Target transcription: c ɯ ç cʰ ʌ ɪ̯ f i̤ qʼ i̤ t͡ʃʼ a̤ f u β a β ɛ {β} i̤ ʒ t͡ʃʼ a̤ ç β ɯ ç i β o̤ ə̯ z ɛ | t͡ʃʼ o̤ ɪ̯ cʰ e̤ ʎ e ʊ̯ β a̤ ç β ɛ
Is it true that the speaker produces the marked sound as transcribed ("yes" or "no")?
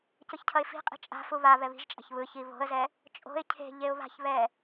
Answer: yes